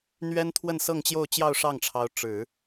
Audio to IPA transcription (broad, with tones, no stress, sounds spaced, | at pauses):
n̪ ɥ ɛ˥ n t̪ʰ w ə˥˧ n s ɤ˥˧ ŋ t͡ɕ j o˥˧ ʊ̯ t͡ɕ j ɑ˥˧ ʊ̯ ʂ ɑ˥˩ ŋ ʈ͡ʂʰ ɑ˧˥ ʊ̯ ʈ͡ʂ ɻ̩˨˩˦